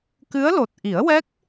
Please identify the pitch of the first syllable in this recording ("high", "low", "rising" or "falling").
rising